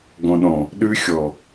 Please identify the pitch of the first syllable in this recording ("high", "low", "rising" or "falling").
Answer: low